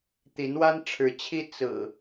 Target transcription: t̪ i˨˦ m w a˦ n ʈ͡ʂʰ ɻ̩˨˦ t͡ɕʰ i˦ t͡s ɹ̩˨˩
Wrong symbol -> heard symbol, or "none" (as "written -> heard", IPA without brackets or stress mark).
m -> n